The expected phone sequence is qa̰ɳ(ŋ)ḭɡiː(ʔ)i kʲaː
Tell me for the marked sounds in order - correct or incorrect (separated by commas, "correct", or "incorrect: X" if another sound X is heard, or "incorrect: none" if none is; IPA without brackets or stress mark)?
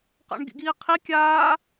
incorrect: ɡ, incorrect: qʰ